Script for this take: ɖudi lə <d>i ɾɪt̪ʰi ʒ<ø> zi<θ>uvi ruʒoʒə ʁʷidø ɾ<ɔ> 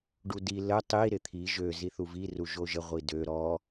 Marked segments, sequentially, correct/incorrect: incorrect: tˤ, correct, correct, correct

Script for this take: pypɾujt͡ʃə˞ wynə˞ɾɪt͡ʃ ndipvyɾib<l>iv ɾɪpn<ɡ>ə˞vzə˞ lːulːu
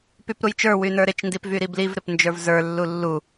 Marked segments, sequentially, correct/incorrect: correct, incorrect: d͡ʒ

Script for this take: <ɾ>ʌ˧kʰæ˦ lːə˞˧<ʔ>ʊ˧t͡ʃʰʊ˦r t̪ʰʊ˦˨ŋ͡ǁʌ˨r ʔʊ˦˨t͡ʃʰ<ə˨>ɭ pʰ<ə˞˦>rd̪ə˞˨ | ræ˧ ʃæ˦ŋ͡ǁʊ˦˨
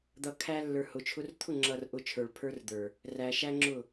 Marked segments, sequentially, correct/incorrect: incorrect: d̪, incorrect: h, incorrect: ə˞˨, correct

